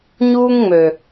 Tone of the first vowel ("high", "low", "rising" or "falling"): high